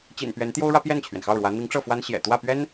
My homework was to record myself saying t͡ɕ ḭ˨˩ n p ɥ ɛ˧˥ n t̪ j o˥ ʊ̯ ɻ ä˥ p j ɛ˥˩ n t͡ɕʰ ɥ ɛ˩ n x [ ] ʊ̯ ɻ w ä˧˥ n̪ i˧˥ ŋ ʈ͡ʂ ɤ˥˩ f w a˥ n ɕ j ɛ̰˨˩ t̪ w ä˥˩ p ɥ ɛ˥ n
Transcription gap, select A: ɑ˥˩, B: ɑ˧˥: A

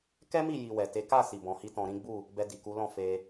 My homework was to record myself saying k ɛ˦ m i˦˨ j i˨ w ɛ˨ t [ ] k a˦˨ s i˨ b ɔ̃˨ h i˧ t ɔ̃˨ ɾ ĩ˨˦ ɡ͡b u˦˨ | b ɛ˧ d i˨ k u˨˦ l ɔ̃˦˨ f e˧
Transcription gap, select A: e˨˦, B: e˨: A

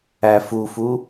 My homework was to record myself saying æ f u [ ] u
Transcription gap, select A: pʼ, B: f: B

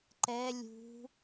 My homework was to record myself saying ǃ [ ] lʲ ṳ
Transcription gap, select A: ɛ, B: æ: A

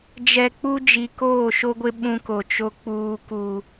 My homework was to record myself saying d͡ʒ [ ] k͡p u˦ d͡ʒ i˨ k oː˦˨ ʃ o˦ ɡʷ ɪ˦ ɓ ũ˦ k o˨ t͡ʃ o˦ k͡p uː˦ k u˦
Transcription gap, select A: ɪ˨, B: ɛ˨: B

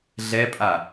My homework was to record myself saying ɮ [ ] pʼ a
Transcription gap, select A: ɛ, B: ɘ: A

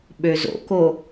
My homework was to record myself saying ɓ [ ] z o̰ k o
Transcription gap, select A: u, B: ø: B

